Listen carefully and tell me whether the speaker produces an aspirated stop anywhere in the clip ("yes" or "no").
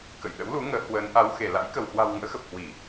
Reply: no